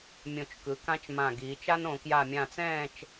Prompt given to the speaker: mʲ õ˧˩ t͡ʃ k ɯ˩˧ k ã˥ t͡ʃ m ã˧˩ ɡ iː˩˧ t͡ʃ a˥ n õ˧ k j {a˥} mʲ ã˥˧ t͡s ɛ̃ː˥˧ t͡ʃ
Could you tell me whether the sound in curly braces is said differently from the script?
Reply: yes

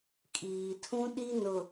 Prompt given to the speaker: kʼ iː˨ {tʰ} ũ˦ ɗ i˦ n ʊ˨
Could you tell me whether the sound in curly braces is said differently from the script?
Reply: no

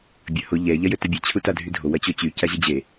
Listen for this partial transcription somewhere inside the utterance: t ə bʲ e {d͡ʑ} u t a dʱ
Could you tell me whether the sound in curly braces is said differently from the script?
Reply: yes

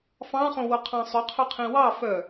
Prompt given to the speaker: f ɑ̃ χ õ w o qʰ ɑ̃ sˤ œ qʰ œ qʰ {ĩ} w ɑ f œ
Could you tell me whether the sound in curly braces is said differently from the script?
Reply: no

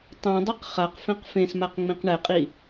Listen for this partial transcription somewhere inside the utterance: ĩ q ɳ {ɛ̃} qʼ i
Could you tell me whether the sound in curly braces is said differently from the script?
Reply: yes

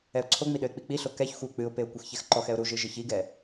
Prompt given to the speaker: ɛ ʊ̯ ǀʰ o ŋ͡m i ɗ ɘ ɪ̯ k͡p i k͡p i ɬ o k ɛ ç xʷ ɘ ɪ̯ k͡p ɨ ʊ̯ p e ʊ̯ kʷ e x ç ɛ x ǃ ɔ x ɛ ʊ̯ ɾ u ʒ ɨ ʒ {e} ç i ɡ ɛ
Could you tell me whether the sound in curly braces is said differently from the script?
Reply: yes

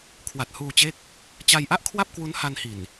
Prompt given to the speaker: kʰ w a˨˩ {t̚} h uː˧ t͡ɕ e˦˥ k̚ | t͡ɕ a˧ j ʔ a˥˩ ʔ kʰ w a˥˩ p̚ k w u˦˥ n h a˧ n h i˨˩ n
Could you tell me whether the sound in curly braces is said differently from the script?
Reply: no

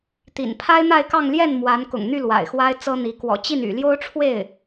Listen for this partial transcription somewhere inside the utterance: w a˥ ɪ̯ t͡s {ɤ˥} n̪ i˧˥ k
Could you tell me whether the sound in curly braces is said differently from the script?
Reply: no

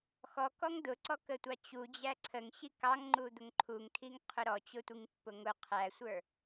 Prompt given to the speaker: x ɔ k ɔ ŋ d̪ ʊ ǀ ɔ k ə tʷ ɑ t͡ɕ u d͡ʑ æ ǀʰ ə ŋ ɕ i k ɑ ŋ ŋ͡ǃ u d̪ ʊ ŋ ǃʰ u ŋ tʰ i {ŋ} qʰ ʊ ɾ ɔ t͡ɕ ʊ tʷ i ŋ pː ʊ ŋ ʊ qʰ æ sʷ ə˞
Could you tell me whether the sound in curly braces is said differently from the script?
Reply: no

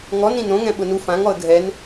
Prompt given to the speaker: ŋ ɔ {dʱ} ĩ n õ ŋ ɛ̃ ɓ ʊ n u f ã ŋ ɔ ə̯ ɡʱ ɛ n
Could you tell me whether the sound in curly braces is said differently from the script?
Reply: yes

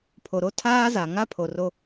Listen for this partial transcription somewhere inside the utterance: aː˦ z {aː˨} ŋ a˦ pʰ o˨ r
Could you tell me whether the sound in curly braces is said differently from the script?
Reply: yes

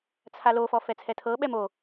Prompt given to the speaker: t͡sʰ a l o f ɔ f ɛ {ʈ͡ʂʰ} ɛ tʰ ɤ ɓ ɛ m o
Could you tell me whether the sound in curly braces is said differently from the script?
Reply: yes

